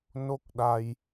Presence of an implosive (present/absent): present